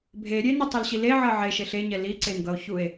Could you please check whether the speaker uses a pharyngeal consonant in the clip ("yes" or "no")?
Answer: yes